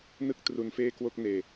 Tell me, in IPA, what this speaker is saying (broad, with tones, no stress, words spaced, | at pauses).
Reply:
nɯ˥˩k̚tru˧nfeː˥˩kwo˥˩k̚ neː˧